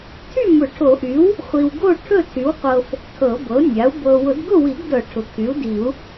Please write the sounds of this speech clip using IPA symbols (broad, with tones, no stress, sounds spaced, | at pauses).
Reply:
tʰ y˥˨ m ʊ˨˩˦ ʈʰ o˨˩˦ ʔ y˩˥ w | χʷ i˨ w ɡ o˥˨ ʈʰ ɵ˥˨ tʰ y˩˥ w qʷ ɤ˨ f | tʰ ɤ˨˩˦ b ɤ˩˥ nʲ a˩˥ u̯ b ɤ˨ w ʊ˨˩˦ d ɡ ʊ˥˨ w i˨˩˦ ɡ d ɤ˨˩˦ ʈʰ ʊ˩˥ kʰ y˩˥ u̯ d i˨˩˦ u̯